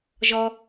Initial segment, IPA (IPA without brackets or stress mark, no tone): ʒ